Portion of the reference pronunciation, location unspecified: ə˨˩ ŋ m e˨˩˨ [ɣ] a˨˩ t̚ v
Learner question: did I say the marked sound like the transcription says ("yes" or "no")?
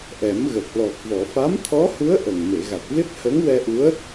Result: yes